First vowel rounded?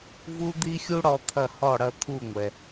yes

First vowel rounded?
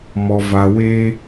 yes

